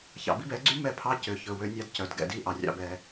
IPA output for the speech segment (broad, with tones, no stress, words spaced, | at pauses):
çɑ̰˨bi˦bɛ˨˦ɡ͡ǀy˦ mɛ˦˨pʰɑ˦ cø˨çɵ˨ wø˦nʲɑ˦d cœ˨d ɡɛ̰˨di˦˨ʔɑ˨ rʲɑ̰˦bɛ˦